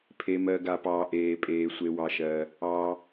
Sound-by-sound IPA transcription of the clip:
pʰ e˩ m ɜ˩ ɡ a˩ p ɑː˩ ʔ eː˩ pʼ eː˩ sʷ e˩ w ɑ˩ ʃ ɜː˩ | ɑː˩

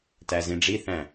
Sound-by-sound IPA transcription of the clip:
t æ z ĩ ɖ͡ʐ i θ æ̃

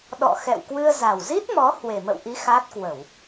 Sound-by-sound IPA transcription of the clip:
ɗ ɔ̰˧˨ x ɛ̰˧˨ w k w ɨ˧ ə̯ z a˨˩ w z i˦˥ t̚ m ɔ˨˦ h w e˨˩ m ə̰˧˨ w ʔ i˨˦ x a˦˥ t̚ k w ə˧˩˨ w

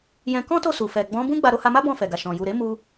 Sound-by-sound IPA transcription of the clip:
j ɛ̃˧ k ɔ̃˦ t o˦˨ s u˨ f ɛ˨ ɡ͡b ɔ̃˨˦ b ũ˦ ɡ͡b a˧ ɾ o˧ h a˧ m a˦ b ɔ̃˦˨ f ɛ˨ ɡ a˨ ʃ ɔ̃˨ j u˨ ɾ e˨˦ m u˧

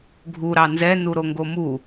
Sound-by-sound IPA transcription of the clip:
ɡʱ u ɾ ɑ n z ɛ n u ɾ o ŋ ɡ o m u

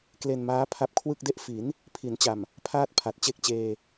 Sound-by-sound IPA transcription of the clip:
k l e˧ n m aː˦˥ pʰ a˦˥ p̚ kʰ w ɯ˥˩ k̚ d e˥˩ ʔ f i˩˦ n | pʰ i˩˦ n t͡ɕ a˨˩ m | pʰ aː˥˩ t̚ pʰ a˨˩ t̚ t͡ɕ e˥˩ k̚ t͡ɕ eː˧

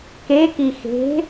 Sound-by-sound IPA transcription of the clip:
k e k i x e̤

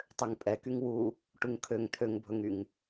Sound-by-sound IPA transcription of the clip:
tˤ ø ŋ pʼ ɛ k y ŋ w u | ʈ u ŋ kʰ ø ŋ t̪ʰ ø ŋ bʱ ɵ ŋ y ŋ

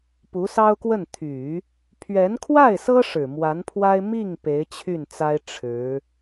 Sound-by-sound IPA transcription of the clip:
p u˧˥ s ɑ˥ ʊ̯ k w ə˥˩ n t̪ʰ y˨˩˦ | pʰ ɥ ɛ˧˥ n kʰ w a˥˩ ɪ̯ s ɤ˥ ʂ ɻ̩˨˩ m w a˧˥ n pʰ w a˥ ɪ̯ m i˥˩ ŋ p e˧˥ ɪ̯ t͡ɕʰ y˥˩ n t͡s a˥ ɪ̯ ʈ͡ʂʰ ɻ̩˧˥

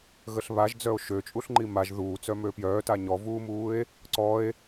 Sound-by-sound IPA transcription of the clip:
ɣ ə ɬ β a ʒ d͡z œ o̯ ʃ ø t͡ʃʼ u ɬ ŋ͡ǃ i m a ʒ ð uː t͡s œ m ø p j œː t a ɲ ɔ v uː m uː e̯ | ǀ ɔ e̯

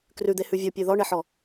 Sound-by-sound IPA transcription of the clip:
k r ʉ d̪ e h ʉ vʲ ɔ pʲ ʉ ð ɔ ɳ e ħ ɔ

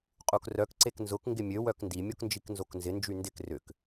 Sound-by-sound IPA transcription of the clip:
qʼ u k r œ k ǀ e k n z ʊ k ŋ ɡ ɪ mʲ ø w œ k n d i mʲ o k n d͡ʒ i k n z o k n z ɪ n d͡ʒ y n d ɪ k r ʏ k

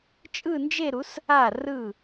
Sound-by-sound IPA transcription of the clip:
t͡ʃʼ ɯ˥˧ n d͡ʒ e˥˧ ɾ u˨˥ s | a˥˩ r ɯ˥˩

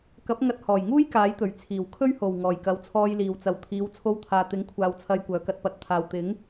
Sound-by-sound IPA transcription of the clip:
k ɐ˨˥ p̚ ŋ ɐ˧ t̚ h ɔː˨˩ j ŋ uː˥ j k aː˨˥ j t̪ ɵ˨˩ ɥ t͡sʰ iː˨˩ w kʰ ɵ˥ ɥ h o˨˩ w ŋ ɔː˨˩ j k ɐ˨˥ w t͡sʰ ɔː˧ j l iː˨ w t͡s ɐ˨˧ w t̪ʰ iː˨˧ w t͡sʰ o˧ w t̪ʰ aː˨ t̪ ɪ˨˥ ŋ kʷʰ aː˨ w t͡sʰ ɐ˧ j kʷ œː˨˧ k ɐ˧ t̚ p ɐ˨˥ t̚ t̪ʰ aː˨ w t̪ ɪ˨˥ ŋ

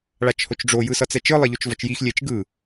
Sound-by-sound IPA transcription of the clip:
ɭ a t͡ʃ h o t͡ʃ ɖ͡ʐ o j ɯ s ʌ t͡s ɛ t͡ʃ ɯ lˠ e ʎ o t͡ʃ v ʌ t͡ʃ j i x lʲ e t͡ʃ ɡ ɯ

